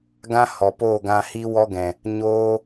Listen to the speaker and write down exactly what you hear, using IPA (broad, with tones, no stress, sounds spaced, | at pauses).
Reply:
ɡ ã˦ h ɔ˨ p oː˦˨ ɡ ã˧ h i˦ w ɔ˦ ɡ ɛ̃˨ | ɲ oː˦